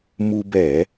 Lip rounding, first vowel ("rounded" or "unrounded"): rounded